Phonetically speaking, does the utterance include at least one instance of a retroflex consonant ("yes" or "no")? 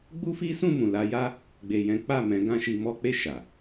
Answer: no